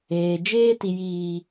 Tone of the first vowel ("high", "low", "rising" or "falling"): low